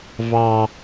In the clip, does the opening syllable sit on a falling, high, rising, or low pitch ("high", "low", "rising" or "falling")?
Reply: high